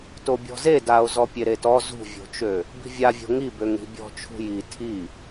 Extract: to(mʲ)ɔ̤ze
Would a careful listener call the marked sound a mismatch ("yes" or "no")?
yes